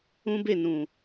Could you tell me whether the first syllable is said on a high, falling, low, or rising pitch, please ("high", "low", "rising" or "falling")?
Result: high